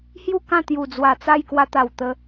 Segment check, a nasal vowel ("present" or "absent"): present